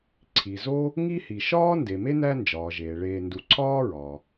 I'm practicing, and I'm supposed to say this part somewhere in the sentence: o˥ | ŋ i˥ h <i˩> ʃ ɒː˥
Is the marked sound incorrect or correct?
correct